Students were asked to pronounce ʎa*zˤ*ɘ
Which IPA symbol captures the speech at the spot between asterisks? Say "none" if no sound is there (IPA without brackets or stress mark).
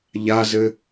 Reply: z